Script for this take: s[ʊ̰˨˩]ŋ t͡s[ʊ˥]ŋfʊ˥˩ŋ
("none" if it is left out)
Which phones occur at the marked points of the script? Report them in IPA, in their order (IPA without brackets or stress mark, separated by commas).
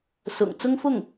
ʊ̰˨˩, ʊ˥